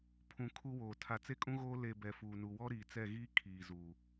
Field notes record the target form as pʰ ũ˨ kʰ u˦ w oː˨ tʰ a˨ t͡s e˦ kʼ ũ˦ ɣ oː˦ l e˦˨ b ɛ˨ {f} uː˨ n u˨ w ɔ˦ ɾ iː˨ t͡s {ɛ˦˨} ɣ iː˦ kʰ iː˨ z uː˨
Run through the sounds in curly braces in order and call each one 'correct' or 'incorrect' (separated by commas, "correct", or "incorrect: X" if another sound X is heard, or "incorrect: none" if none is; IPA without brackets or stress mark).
correct, correct